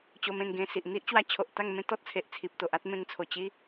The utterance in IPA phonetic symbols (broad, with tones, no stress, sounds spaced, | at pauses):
t͡ɕ o˧ m ẽ˥˧ n ɡ ẽ˧ s i˨ ʔ n̪ i˦ ʔ t͡ɕ w a˧ t͡ɕʰ o˨ ʔ t̪ a˥˧ ŋ m ẽ˦ t̪ ɔ˦ t̚ t͡sʰ e˨ ʔ t͡sʰ i˨ p̚ t̪ o˨ ʔ a˦ t̚ m ẽ˧ ŋ t͡sʰ o˨˩ t͡ɕ i˦